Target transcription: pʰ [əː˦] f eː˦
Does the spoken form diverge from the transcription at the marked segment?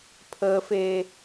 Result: no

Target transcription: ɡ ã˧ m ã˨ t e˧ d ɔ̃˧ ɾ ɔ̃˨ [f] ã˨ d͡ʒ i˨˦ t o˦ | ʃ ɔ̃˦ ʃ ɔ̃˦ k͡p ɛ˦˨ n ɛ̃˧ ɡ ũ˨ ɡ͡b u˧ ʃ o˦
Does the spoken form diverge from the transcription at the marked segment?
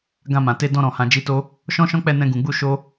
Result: yes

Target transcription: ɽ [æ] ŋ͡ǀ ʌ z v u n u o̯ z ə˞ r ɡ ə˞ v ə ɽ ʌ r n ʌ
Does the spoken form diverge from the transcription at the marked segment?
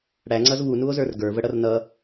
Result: no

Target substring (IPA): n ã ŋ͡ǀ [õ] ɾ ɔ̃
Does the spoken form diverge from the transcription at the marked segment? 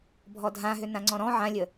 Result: yes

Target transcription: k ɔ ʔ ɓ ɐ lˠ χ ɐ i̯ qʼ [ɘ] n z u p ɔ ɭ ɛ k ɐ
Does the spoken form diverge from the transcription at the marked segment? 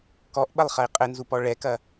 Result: no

